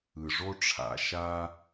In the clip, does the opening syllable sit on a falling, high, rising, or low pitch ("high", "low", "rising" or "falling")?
low